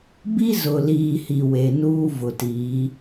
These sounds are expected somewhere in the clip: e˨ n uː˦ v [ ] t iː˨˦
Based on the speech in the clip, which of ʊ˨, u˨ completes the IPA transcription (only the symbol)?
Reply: ʊ˨